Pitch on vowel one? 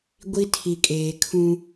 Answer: high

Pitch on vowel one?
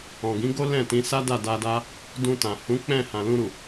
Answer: low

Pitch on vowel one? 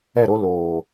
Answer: falling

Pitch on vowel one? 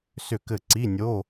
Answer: falling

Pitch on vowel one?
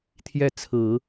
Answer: falling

